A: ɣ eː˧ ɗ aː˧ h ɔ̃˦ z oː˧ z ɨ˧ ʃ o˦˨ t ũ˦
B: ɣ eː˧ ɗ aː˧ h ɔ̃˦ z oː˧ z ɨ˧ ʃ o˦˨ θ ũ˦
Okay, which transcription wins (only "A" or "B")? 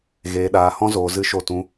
A